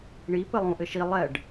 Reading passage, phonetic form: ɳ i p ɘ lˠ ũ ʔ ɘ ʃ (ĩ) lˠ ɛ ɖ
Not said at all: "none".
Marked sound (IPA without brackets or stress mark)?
i